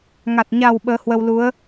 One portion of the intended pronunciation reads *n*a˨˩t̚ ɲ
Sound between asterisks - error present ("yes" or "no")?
yes